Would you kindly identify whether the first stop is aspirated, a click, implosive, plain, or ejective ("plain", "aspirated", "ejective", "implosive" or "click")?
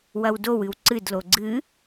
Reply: plain